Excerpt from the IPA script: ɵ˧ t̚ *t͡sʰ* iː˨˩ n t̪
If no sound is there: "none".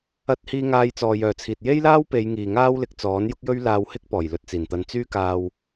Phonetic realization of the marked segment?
t͡s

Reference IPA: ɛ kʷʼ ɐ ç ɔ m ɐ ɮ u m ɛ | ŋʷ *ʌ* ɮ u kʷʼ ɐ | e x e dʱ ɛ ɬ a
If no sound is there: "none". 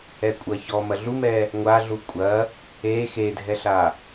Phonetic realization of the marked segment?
a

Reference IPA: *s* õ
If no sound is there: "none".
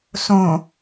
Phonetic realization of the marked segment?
s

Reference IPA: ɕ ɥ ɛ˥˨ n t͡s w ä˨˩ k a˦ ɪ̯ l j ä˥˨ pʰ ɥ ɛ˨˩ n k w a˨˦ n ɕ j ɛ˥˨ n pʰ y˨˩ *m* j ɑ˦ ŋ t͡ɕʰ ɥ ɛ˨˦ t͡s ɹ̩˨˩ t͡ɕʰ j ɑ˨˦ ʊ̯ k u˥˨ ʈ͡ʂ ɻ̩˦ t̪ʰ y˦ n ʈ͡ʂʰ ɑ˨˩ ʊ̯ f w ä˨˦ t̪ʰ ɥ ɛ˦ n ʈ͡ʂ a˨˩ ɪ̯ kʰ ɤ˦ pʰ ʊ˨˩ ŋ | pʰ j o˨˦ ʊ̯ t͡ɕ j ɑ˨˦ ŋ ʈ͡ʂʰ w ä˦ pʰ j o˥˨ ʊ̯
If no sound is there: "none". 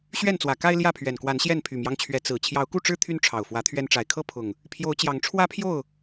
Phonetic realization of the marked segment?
m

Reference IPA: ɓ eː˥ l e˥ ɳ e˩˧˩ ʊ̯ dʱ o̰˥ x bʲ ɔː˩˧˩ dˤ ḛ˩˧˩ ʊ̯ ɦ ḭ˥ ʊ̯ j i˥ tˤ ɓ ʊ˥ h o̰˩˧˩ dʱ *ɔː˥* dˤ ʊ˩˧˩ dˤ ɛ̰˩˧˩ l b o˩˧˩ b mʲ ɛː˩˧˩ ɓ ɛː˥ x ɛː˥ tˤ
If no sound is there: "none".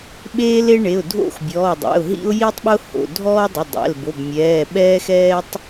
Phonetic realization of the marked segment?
ɔː˥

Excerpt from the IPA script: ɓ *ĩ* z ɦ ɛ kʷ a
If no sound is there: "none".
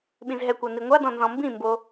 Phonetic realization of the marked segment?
ĩ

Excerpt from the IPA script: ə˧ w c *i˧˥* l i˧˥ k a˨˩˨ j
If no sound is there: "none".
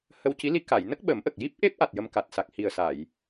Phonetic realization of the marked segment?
i˧˥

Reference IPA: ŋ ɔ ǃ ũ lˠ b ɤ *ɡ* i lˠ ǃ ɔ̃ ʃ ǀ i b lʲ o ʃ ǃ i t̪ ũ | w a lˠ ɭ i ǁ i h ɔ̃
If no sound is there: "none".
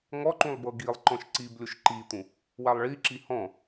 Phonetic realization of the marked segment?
ɡ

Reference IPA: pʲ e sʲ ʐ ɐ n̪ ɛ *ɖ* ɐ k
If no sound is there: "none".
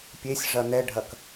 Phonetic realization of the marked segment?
ɖʱ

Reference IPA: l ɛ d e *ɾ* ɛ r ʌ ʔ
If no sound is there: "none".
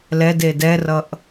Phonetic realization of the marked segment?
d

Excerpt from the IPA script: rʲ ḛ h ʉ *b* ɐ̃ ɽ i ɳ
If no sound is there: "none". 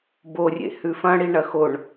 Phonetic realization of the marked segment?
f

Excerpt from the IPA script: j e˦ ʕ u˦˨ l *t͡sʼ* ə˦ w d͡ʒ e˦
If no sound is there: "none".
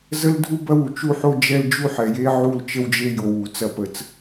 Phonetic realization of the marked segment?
t͡ʃ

